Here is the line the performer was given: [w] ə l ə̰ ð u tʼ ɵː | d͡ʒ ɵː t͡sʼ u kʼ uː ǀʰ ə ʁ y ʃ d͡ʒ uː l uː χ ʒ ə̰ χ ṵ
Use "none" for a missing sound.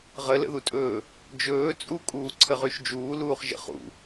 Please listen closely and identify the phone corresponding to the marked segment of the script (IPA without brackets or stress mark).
ʁ